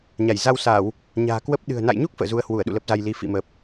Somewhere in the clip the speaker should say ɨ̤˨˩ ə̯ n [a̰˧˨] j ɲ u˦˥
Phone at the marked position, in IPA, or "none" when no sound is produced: a̰˧˨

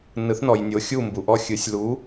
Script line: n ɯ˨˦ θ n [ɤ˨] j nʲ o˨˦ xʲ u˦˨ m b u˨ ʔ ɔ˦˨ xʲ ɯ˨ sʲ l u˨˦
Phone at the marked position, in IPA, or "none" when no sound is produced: ɔ˨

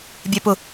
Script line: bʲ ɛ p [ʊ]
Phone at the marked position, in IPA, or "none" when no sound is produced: ʊ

